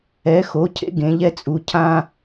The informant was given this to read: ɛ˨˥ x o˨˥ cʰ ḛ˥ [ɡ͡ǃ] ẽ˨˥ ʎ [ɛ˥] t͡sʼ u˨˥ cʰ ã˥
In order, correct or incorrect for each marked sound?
incorrect: ɡ, correct

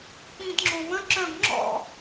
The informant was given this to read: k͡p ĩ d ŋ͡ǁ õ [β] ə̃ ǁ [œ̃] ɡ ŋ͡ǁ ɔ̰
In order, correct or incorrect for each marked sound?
correct, correct

